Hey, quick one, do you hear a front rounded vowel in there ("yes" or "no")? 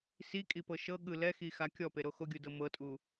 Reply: no